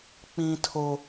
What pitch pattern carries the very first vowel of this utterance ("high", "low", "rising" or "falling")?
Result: high